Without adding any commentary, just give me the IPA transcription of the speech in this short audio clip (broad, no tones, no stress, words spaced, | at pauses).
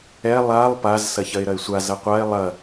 ɛ lˠalˠ paz sɐçɐɪ̯ɾɐɪ̯sʷa zɐqʷaɪ̯ lˠɐ